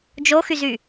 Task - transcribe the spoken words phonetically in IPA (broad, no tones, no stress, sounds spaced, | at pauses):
d͡ʒ o x y z y